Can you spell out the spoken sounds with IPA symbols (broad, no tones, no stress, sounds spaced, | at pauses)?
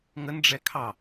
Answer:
ŋ ə n ɖ͡ʐ ɛ kʰ ɑ